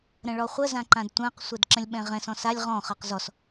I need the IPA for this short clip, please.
ɾ ə̃ ɭ ɔ χʷ ə z ã ǃ ã d tʷ ã q sʷ ɛ d ǁ ə̃ lʲ ɓ ɛ̃ ʁ ɛ̃ s ɔ̃ s a lʲ ʁ ɔ̃ χ ɜ q z ɔ s

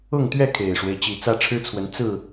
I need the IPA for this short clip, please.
ʊ˥˨ ŋ t̪ ɥ ɛ˥˨ kʰ e˨˩ ɪ̯ ʂ w e˦ ɪ̯ t͡ɕ i˨˩ t͡s ä˦ ʈ͡ʂʰ ɻ̩˦ t͡sʰ w ə˨˦ n t͡s ɹ̩˥˨

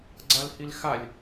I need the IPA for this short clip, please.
ɡ͡ǀ a l h i l x a lʲ

